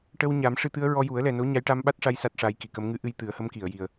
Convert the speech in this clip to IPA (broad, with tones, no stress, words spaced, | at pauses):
ʈə˧w ɲa˨˩˦mʂɨ˧t̪ɨ˧˥ə̯ɹɔ˧ ju˨˩˦ə̯lɛ˨˩no˧˥ ɲa˧˥jʈa˧mɓa˦˥t̚ʂa˧j sa˦˥t̚ʂa˧˥jki˨˩˨kə˧˥m ŋɨ˧ʔɨ˧j t̪ɨ˨˩˦ə̯hə˧˥mki˨˩˨ə̯ ji˨˩ə̯